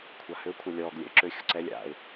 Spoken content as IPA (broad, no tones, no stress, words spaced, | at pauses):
kʷʰahø kʷʰɐlʲɔːɡ lʲɛ̰ə̯ǁø xʲʊǀɛlʲ a̰ɪ̯